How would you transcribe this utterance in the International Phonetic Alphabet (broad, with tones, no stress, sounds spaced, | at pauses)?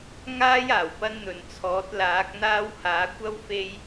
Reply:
ŋ aː˥ j aː˨˩ w p ɐ˥ n n̪ ɵ˨ n t͡sʰ ɔː˨˥ t̚ l aː˨˥ k̚ n̪ aː˥ w h aː˨˥ kʷ ɐ˥ w f e˥ j